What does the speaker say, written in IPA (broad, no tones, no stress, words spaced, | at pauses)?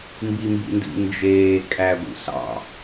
mbimbḭndḭnd͡ʒeː kʼæɡʷḭɬɑ̰